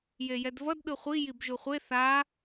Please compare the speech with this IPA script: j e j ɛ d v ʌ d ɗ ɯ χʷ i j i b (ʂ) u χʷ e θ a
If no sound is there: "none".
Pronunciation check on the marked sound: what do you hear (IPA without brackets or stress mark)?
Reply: ʒ